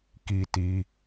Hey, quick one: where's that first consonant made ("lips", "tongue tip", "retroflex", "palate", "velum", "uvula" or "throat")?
velum